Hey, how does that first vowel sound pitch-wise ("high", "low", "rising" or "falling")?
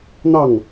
falling